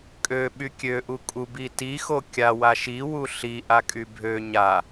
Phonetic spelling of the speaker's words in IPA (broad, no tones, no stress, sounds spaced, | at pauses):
kʼ ø ɓ y kʲ ø ʔ u kʼ u b i t i x o kʲ a w a ʃ i w u ɬ i ʔ a kʼ y bʱ ø ɲ a